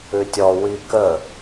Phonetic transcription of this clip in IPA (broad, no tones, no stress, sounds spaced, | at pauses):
ʉ tʲ ɔ w i k ə